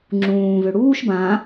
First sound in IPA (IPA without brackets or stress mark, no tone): ŋ͡ǁ